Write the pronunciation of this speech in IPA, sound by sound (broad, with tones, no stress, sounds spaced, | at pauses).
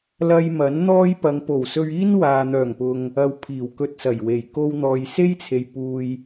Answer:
l ɐ˥ j m ɐ˨˥ n n̪ ɔː˥ j p ɐ˨˧ ŋ p o˨˩ w s ɵ˧ ɥ iː˥ n w aː˨ n̪ œː˨˩ ŋ p ʊ˨ ŋ | ɐ˧ w pʰ iː˨˩ w k ɵ˧ t̚ s ɐ˨˩ j w e˨˩ j k o˧ w n̪ ɔː˨ j s e˥ j t͡sʰ e˨ j p uː˧ j